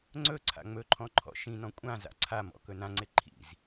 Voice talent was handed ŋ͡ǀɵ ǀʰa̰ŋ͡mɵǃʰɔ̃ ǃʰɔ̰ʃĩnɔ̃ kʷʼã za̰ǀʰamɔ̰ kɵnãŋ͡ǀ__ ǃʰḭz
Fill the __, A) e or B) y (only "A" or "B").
A